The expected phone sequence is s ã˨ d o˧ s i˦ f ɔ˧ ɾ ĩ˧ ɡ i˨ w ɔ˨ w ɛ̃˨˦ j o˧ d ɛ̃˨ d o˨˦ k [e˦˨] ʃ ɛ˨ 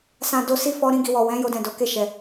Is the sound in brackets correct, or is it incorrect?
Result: correct